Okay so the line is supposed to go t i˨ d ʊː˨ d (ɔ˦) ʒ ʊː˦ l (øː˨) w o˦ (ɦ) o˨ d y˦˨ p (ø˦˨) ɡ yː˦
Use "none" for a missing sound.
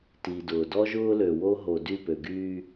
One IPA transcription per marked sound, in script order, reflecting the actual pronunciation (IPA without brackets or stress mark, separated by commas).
ɔ˦, ø˨, ɦ, ø˨